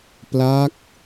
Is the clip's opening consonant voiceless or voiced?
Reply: voiceless